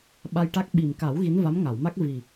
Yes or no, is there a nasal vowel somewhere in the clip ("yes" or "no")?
no